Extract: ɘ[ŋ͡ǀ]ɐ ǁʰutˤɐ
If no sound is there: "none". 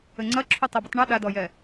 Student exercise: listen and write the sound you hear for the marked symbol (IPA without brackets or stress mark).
ŋ͡ǀ